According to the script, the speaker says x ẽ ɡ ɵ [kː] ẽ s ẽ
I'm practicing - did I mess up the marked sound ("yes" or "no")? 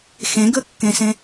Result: no